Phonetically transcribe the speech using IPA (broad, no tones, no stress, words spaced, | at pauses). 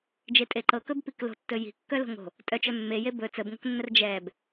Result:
d͡ʒetʼeǃɤkɵb piklo̤tːɵ ji̤kːœ lo̤ŋo̤ | tʼœt͡ʃœ mːeje bɵ t͡səbŋo̤knːər d͡ʒɛb